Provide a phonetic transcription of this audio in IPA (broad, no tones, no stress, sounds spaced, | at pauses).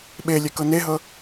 ɓ e lʲ ɛ k ɤ n e ɦ ɤ